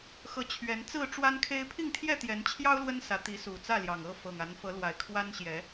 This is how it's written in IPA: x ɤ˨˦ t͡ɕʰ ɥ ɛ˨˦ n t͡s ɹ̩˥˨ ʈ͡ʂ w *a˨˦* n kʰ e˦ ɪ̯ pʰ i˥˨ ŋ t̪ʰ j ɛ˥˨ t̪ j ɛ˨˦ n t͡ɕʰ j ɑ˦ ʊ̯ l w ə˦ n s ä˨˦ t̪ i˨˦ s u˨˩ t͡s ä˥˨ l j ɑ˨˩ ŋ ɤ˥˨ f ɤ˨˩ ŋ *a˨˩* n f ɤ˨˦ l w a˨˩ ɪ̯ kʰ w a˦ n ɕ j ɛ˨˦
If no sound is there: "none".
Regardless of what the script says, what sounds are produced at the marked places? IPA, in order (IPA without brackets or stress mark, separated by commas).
a˦, a˨˦